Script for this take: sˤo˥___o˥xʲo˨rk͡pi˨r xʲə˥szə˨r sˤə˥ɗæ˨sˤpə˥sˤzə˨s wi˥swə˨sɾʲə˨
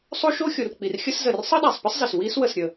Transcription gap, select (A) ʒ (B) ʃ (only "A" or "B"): B